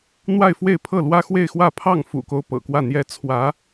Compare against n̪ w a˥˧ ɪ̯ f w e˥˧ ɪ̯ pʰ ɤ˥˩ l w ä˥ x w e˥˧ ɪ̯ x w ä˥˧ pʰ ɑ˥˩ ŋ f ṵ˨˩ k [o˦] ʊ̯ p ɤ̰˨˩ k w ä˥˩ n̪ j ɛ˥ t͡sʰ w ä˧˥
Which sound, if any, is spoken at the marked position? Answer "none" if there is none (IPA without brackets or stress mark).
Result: o˦